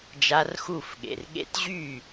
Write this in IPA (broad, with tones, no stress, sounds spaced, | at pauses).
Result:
d͡ʒ a˦˥ r x u˥˩ f ɠ ḛ˨ r ɠ ḛ˦˥ t ʑ y˥˩